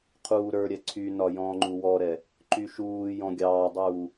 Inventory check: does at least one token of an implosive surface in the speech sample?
no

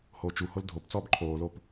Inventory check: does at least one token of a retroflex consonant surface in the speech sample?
no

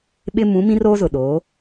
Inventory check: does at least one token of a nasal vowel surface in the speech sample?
yes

